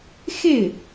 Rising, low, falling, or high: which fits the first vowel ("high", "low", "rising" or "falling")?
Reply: falling